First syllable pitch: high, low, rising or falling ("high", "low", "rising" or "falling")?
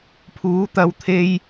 rising